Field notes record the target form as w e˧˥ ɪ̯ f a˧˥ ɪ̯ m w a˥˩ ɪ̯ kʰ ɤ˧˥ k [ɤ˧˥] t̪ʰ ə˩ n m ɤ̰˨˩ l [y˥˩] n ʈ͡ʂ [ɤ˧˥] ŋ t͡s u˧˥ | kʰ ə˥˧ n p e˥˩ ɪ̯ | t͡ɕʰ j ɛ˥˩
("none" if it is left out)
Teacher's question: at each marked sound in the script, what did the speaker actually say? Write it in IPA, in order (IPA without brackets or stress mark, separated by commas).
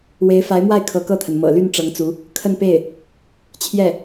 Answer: ɤ˥˩, y˥˩, ɤ˧˥